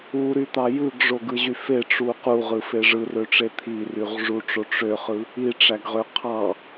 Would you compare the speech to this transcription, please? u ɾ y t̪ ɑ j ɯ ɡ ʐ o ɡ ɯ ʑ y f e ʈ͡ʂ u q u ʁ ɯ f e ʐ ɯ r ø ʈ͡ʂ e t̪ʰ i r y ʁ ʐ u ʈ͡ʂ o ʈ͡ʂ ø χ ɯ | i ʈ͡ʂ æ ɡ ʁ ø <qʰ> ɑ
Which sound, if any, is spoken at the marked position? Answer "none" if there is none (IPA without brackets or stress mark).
qʰ